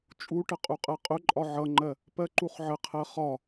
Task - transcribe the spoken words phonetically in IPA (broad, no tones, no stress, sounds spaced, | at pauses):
t͡ʃʼ u ʈ ə qʼ u qʼ ɜ qʼ ʊ ǃʼ ɒ ʕ ʌ ŋ͡ǃ ɜ | p ɜ ǃ u χ ʕ ə qʰ ɜ χ ɒ